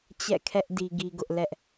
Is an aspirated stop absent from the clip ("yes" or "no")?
no